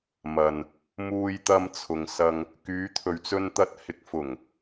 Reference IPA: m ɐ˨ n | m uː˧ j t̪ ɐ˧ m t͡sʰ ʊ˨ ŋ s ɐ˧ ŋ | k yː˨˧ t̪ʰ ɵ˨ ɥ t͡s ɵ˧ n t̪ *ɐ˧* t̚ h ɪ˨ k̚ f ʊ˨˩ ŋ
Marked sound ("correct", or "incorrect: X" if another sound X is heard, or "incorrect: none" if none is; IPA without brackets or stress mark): correct